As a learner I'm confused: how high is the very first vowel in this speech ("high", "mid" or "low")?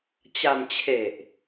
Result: low